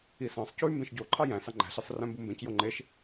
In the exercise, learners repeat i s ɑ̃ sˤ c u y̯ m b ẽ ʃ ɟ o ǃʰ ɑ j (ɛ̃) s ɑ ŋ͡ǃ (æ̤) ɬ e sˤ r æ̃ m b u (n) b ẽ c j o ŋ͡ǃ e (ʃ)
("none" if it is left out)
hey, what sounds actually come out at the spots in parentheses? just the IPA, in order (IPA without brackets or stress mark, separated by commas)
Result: æ̃, æ̤, m, ʃ